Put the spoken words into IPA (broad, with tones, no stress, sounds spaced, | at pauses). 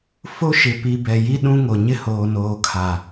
f o˦ ʃ ɪ˨ p i˨ b ɛ˨ j i˦ ɗ ũ˦ ŋ o˨ ɲ ɪ˦ h oː˨ n oː˨ kʰ a˨